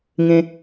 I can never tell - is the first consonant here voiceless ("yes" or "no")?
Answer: no